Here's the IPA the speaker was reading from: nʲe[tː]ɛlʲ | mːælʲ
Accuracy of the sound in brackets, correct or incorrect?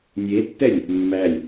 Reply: correct